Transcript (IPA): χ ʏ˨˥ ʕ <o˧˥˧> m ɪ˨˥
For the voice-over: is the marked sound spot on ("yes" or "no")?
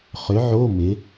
yes